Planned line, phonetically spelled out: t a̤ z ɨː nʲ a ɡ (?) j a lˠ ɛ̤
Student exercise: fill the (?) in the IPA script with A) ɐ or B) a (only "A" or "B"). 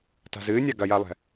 A